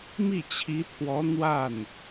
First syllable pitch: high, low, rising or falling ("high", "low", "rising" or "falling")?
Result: falling